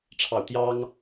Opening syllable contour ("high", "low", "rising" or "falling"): falling